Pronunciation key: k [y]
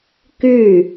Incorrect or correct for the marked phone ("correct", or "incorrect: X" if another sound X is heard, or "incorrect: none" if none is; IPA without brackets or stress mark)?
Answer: correct